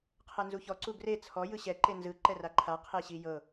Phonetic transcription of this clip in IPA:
qʰ ɛ n z u ç ɔ ǀ u ɡ r e t͡sʰ ɔ j ɯ ɕ ɛ ǃ e n z ɯ ǃ ɛ r a ǃʰ a qʰ e ɕ i j ɤ

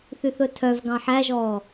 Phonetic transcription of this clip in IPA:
θ y θ ɵ tʰ œ v ɡ ɑ̃ ħ æ ʒ ɔː

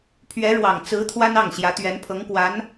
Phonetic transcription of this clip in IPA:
pʰ ɥ ɛ˧˥ ɻ w ɑ˨˩ ŋ t͡s ɹ̩˧˥ t̪ʰ w a˥ n ɑ˥˩ ŋ ɕ j ä˧˥ t̪ ɥ ɛ˧˥ n pʰ ɤ˧˥ ŋ k w a˧˥ n

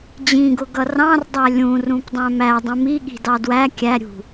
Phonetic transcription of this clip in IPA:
d͡ʑ ĩ ɡ ʊ ɡ ʌ r ɑ̃ r dˤ æ lʲ ũ r ũ p dˤ æ̃ m æ dˤ ũ m i ɠ i̤ d ɑ d w æ kʲ æ ɾʲ ṳ

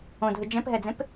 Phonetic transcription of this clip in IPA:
õ dʱ ɯ d͡ʒ ɛ̃ p ɦ ɛ d͡z ẽ p

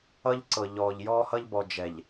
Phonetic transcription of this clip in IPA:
ʌ˦ ʎ ǀ ɤ˨ ʎ ɔː˨ ʎ j ɔː˦ h ʌ˦ ʎ b ɔ˨ d͡ʒ ɛ˨ ʎ

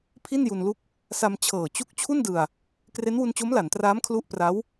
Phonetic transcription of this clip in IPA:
pʰ i˥˩ n j u˧ n l u˥˩ k̚ | s a˧ m t͡ɕʰ ɤː˨˩ t͡ɕ u˥˩ k̚ t͡ɕʰ u˥˩ n d ɯ˧ a̯ | k r e˦˥ n w u˧ n t͡ɕ o˦˥ m l a˩˦ n t r aː˦˥ m kʰ l u˦˥ ʔ p r a˦˥ w

